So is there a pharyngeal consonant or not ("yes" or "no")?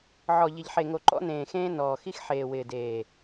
yes